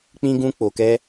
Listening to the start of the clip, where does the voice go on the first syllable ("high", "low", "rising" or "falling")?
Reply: high